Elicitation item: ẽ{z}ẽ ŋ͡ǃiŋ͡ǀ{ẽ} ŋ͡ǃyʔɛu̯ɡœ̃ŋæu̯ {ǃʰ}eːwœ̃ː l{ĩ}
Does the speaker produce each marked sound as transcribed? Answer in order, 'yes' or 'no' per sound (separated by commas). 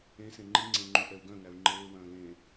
no, yes, no, no